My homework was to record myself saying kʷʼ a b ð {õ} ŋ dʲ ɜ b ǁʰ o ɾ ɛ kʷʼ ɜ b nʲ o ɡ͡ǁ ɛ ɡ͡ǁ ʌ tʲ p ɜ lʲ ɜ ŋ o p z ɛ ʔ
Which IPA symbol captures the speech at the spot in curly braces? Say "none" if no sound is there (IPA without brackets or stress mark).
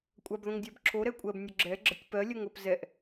õ